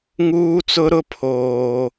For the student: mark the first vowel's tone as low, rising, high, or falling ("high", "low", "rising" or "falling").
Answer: high